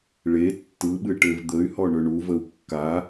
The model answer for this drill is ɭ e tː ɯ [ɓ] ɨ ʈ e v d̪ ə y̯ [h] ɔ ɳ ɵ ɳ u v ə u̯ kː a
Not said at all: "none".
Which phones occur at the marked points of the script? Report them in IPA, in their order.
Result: ɓ, h

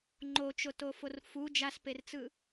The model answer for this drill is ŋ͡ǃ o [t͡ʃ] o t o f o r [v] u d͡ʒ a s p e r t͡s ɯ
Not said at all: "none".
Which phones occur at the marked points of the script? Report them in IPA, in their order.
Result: t͡ʃ, f

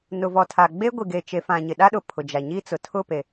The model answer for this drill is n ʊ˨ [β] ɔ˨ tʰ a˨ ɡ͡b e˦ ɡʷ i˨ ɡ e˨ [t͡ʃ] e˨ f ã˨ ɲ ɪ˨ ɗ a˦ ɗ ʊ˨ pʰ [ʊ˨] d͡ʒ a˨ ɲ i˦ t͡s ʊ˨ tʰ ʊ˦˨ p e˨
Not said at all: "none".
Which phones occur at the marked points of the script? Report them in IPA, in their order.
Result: v, t͡ʃ, ʊ˨

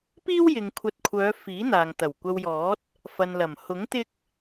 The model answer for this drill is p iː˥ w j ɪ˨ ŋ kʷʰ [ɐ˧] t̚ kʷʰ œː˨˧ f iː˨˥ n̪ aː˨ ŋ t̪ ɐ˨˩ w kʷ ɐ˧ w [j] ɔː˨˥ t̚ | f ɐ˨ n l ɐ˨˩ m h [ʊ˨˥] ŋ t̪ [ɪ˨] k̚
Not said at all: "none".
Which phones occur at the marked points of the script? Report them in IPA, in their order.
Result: ɐ˧, j, ʊ˨˥, ɪ˥

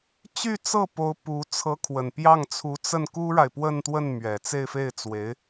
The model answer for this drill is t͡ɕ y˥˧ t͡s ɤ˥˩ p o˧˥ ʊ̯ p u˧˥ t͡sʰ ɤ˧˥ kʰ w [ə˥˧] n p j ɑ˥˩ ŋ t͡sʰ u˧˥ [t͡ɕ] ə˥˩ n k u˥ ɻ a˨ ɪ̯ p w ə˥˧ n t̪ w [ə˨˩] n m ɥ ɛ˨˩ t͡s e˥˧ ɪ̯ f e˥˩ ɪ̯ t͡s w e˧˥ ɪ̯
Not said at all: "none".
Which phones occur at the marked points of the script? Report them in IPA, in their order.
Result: ə˨˩, t͡s, ə˥˩

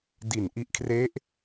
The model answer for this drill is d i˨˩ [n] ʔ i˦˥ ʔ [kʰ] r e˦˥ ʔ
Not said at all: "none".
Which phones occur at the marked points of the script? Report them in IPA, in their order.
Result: n, kʰ

